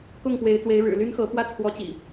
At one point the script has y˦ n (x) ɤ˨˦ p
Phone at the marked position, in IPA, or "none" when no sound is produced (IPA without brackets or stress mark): x